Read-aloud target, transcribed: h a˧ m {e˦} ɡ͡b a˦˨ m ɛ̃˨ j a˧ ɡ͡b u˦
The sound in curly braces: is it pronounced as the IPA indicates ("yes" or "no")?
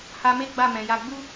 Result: yes